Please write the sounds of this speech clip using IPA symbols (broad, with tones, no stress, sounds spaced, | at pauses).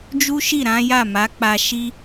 d͡ʒ u˦ ʃ i˦˨ ɾ ã˨˦ j a˦˨ m a˨˦ k͡p a˧ ʃ i˦